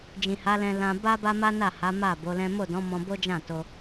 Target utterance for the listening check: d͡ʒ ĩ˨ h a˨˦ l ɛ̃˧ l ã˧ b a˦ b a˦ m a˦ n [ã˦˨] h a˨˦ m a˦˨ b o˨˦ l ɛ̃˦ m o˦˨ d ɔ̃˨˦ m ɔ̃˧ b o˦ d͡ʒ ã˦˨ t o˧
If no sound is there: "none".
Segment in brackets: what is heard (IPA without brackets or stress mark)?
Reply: a˦˨